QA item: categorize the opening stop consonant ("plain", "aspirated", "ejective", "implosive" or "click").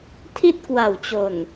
aspirated